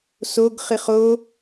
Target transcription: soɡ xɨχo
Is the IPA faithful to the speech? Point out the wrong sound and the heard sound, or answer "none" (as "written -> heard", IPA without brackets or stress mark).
x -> χ